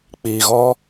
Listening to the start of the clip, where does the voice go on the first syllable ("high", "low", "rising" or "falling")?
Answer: low